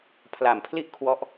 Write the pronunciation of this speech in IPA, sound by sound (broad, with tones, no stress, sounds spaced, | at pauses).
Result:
pʰ l a˨˩ m pʰ l i˥˩ ʔ kʰ w ɔ˦˥ ʔ